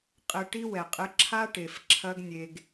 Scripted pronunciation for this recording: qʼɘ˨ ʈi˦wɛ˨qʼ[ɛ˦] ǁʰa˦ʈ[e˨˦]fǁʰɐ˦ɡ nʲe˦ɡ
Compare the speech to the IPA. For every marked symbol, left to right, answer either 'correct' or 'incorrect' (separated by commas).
incorrect, incorrect